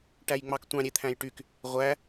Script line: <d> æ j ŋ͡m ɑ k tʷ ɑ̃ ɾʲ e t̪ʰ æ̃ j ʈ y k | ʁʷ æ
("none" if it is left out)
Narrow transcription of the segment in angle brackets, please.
ʈ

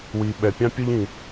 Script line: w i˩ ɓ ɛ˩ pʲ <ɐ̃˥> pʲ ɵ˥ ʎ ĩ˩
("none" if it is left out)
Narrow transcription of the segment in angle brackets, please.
ɑ̃˥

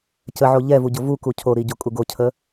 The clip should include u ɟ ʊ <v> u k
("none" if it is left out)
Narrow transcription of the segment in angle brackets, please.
v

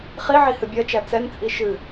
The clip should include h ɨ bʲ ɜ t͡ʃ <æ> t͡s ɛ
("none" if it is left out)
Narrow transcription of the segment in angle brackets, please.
æ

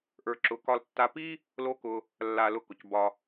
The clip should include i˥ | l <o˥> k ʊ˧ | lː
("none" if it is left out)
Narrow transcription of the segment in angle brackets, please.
o˥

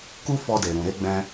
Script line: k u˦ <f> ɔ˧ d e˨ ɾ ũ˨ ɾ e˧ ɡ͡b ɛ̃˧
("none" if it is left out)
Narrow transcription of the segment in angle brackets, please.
f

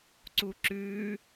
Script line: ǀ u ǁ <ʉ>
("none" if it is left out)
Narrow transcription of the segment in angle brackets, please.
ʉ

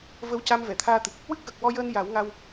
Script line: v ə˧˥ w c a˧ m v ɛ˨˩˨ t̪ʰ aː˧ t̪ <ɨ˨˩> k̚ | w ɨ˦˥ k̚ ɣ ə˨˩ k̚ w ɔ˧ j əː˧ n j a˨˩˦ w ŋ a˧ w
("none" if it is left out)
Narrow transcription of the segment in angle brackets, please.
ɨ˨˩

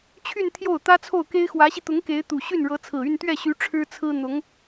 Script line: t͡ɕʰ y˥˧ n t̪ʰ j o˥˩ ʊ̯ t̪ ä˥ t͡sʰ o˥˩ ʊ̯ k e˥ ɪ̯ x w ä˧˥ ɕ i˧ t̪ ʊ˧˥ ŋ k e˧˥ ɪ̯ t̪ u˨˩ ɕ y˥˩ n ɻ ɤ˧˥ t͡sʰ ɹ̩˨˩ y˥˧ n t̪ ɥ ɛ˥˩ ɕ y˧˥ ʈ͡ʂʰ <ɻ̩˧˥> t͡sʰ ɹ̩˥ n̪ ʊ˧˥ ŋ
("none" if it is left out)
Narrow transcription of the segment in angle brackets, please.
ɻ̩˥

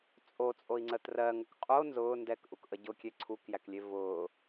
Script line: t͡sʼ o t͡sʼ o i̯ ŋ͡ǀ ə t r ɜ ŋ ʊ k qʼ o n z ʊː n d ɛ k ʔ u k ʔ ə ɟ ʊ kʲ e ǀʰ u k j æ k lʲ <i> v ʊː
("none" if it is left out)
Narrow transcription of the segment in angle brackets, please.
e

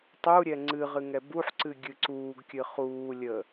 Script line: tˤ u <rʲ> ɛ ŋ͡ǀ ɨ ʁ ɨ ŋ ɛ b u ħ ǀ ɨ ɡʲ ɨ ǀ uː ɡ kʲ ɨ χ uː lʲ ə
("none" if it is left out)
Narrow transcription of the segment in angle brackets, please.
ɾʲ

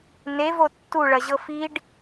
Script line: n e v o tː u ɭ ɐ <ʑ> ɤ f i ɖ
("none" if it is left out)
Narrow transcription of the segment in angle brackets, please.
ʑ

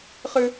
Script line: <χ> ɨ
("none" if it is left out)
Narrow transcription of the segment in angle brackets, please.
χ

